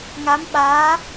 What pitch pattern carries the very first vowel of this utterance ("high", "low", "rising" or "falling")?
rising